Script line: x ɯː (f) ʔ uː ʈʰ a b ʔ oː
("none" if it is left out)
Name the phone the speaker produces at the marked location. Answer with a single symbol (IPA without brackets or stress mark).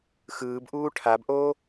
b